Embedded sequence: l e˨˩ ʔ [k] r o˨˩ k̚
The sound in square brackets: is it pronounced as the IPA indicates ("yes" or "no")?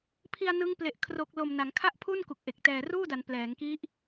no